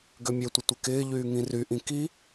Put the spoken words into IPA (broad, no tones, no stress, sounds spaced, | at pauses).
ɡ ø mʲ ø tʷ ɪ tʷ ɪ k ɪː ʎ yː ŋ ĩ r y ʔ ĩ k i